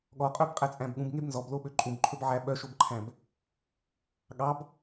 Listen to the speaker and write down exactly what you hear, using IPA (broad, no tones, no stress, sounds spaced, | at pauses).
ɠ ɔ qʼ œ b qʼ æ t͡sʼ æ̃ b ɠ ũ b ŋ e b n z ɔ b l o ɓ ø ǃʼ ũ b ǃʰ ɵ b ʕ æ ɓ œ ʃ o b ǃʰ æ̃ b | ɠ ɑ b